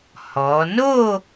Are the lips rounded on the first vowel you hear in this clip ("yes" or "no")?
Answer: yes